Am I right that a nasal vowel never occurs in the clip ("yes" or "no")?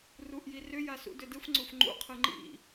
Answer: yes